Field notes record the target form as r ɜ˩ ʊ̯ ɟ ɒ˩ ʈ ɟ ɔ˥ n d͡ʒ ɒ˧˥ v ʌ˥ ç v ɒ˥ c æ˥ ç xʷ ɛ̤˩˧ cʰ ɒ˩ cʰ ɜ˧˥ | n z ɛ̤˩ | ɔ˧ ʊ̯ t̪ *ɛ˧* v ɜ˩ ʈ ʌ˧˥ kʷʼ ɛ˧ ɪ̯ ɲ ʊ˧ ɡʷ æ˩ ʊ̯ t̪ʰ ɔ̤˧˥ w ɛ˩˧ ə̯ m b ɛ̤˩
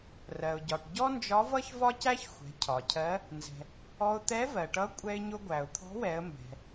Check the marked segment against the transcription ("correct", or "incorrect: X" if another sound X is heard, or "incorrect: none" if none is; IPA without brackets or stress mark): incorrect: ɛ˧˥